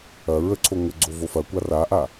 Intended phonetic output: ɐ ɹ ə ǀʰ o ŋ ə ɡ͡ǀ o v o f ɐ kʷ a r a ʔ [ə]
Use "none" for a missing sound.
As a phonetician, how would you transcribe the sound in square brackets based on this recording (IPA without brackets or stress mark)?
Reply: a